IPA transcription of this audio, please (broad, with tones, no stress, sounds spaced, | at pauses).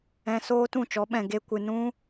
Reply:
ɛ̃˧ s oː˦ t ũ˦˨ t͡ʃ ɔ˨˦ ɓ ɛ̃˨ ɡ e˧ kʷ ɨ˨ n ũ˦